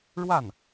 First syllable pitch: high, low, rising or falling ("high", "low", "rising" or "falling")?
falling